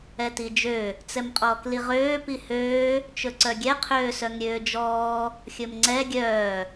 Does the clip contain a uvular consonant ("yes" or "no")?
yes